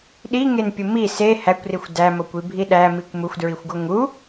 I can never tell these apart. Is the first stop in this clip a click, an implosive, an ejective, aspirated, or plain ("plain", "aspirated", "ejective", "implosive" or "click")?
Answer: implosive